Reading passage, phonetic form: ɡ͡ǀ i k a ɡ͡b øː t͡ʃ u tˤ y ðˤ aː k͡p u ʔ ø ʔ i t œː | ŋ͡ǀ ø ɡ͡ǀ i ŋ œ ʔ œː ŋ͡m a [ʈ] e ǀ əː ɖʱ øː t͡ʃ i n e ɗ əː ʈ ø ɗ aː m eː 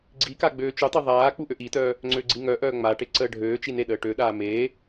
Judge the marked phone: correct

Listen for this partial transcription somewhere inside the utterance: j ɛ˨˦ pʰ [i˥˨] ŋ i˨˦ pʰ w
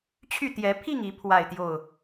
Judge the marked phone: correct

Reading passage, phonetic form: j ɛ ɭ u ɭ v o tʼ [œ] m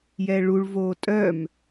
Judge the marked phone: correct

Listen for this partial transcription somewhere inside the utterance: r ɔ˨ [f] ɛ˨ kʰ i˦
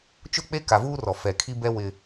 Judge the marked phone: correct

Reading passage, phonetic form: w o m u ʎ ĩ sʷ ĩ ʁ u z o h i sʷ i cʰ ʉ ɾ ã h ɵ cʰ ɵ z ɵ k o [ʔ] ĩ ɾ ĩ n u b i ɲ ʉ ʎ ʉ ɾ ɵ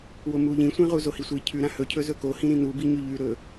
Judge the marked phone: incorrect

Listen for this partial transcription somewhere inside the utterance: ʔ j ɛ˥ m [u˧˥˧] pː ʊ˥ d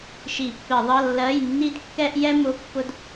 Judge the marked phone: incorrect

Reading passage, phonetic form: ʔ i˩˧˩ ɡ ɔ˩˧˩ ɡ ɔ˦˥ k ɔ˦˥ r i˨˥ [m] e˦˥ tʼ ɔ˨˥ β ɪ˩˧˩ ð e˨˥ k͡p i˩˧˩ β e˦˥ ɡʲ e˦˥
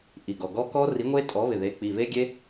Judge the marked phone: incorrect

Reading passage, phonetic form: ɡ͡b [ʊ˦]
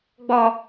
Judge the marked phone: incorrect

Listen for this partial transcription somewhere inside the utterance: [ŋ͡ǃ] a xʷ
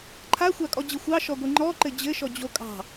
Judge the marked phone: incorrect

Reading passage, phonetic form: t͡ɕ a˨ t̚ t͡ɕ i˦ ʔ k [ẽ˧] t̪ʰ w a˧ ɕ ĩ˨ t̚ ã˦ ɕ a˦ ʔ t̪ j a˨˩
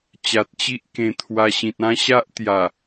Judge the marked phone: correct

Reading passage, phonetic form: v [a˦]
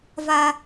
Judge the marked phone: correct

